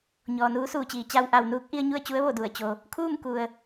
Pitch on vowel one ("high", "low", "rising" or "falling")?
low